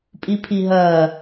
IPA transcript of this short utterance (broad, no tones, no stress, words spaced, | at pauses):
pʼipʰiɦɐ